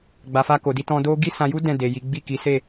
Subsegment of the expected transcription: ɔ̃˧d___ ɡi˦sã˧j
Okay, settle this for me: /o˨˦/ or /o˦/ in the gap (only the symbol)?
o˦